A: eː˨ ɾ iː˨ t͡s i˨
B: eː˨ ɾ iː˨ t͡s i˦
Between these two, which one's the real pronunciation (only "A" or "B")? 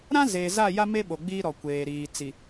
A